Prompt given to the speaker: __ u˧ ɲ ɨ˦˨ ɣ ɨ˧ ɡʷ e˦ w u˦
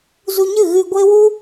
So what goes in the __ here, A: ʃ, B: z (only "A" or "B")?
B